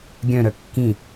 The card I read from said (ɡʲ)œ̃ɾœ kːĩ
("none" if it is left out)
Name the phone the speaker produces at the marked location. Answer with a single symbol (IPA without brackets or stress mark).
ɡʲ